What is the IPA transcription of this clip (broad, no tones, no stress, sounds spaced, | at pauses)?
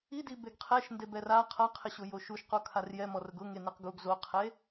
i d i b e ɡ qʰ ɛ ʃ n d e b ɛ r a qʰ a qʰ ɪ ɕ ʊ j o ʃ u ʃ q o kʰ a r j ɛ m ɔ r ʊ ɡ ʊ ŋ e n e q ɡ u ɡ z o qʰ e